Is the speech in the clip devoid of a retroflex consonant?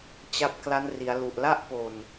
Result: yes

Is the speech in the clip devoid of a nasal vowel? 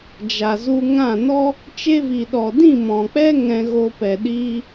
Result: no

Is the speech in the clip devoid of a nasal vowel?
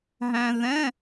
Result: no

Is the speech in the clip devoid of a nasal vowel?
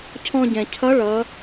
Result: no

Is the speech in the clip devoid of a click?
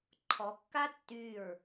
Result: no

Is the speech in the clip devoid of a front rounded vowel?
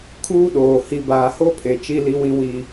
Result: yes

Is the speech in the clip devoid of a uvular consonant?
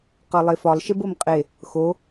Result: no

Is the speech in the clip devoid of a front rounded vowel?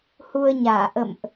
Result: yes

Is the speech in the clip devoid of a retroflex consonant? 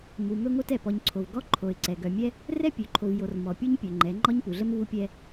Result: yes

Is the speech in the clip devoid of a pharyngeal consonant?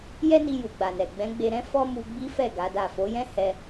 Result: yes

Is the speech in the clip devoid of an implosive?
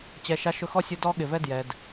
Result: no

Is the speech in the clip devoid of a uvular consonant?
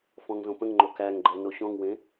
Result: yes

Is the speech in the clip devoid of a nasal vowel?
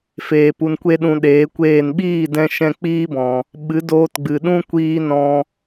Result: no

